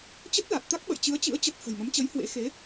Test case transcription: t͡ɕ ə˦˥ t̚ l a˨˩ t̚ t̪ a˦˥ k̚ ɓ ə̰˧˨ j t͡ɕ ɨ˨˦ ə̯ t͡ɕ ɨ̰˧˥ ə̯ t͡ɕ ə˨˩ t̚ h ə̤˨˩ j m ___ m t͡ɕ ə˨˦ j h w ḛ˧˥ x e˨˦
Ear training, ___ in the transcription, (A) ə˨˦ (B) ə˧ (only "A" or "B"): A